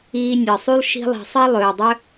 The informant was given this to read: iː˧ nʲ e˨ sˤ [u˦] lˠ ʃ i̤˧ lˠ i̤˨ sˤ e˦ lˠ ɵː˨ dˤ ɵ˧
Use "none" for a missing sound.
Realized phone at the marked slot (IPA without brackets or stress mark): u˦